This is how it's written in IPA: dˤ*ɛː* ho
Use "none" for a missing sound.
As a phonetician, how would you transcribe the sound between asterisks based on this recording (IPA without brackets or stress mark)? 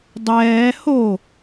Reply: ɛː